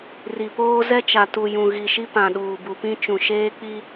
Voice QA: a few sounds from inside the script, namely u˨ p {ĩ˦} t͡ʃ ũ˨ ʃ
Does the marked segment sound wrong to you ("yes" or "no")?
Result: no